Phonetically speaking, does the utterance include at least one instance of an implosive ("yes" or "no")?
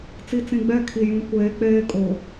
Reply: no